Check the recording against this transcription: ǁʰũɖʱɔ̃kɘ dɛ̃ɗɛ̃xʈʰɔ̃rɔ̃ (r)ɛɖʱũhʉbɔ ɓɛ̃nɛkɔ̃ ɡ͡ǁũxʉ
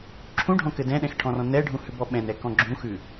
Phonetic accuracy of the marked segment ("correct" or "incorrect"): incorrect